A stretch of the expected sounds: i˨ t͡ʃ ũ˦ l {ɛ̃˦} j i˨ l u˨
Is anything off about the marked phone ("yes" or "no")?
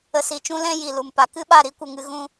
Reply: no